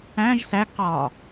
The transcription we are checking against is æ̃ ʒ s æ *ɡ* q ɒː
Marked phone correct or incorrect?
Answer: correct